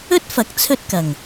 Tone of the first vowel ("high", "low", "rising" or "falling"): high